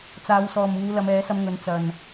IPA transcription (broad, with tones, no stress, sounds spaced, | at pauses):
t͡s aː˨˧ w s ɔː˨ m uː˨˧ l ɐ˨˧ m ɛː˨˥ s ɐ˧ m ŋ ɵ˨˥ n t͡s ɐ˨ n